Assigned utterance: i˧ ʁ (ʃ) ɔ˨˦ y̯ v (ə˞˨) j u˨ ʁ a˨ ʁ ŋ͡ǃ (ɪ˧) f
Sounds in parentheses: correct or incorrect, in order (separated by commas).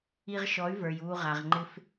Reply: correct, correct, correct